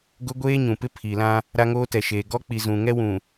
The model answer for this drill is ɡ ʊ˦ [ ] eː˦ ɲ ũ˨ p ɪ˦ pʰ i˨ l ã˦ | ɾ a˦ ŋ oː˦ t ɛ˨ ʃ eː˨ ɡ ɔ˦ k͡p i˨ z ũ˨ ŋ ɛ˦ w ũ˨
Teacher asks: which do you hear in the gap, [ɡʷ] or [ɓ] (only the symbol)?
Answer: ɡʷ